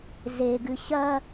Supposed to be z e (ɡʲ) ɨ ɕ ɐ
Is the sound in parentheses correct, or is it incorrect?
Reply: incorrect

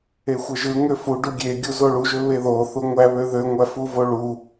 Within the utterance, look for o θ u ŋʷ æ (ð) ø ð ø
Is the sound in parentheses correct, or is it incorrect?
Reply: incorrect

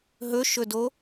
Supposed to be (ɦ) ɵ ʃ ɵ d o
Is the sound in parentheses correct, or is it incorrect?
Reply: correct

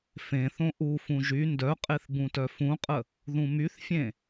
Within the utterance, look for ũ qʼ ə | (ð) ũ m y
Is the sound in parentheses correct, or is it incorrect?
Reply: correct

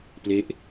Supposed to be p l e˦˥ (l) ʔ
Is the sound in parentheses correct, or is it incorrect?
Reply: incorrect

